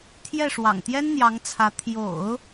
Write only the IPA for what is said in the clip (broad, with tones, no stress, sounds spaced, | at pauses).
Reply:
t̪ʰ j ɛ˥˩ ʂ w ɑ̰˨˩ ŋ t̪ j ɛ˥ n n̪ j ɑ˧˥ ŋ t͡sʰ ä˧˥ t̪ʰ j o̰˨˩˦ ʊ̯